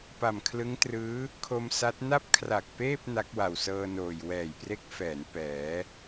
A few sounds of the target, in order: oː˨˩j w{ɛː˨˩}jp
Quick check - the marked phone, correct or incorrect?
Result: correct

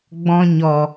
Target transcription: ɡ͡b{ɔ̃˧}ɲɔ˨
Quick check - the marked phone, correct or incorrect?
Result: correct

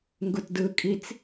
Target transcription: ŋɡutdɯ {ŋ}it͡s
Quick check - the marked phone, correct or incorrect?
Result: incorrect: kʼ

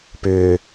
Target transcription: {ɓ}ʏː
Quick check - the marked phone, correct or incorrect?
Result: incorrect: p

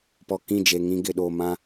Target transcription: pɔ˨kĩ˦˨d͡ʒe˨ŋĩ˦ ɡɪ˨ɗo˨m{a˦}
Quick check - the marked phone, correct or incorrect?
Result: incorrect: ã˦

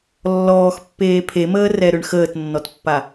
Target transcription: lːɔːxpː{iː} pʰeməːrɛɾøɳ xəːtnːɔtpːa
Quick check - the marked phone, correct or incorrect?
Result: incorrect: eː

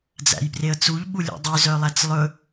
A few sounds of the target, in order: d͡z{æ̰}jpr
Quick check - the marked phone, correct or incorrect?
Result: correct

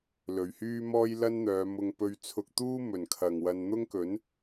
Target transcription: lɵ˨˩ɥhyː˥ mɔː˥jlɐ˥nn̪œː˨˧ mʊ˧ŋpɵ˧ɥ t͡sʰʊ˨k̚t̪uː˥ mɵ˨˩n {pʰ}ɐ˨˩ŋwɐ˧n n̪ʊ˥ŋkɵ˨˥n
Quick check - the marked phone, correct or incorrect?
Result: incorrect: kʰ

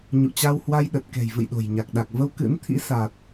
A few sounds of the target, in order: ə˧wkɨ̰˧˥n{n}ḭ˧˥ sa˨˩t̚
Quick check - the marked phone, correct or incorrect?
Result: incorrect: t̪ʰ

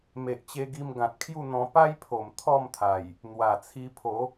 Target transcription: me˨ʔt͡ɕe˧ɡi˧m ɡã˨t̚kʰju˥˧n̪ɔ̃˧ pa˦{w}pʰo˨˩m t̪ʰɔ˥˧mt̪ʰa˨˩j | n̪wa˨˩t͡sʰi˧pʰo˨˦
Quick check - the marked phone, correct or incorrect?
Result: incorrect: j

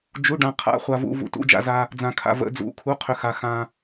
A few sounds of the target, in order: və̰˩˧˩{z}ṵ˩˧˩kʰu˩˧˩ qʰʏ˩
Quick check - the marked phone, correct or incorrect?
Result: incorrect: d͡z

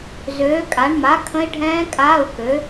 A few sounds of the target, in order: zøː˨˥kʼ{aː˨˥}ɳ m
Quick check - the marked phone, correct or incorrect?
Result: incorrect: a˨˥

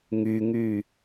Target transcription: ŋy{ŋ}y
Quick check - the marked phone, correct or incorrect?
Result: correct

